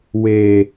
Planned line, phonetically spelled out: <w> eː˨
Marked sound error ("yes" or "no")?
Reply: no